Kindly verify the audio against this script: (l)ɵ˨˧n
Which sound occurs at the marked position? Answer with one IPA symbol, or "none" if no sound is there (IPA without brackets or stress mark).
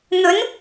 n̪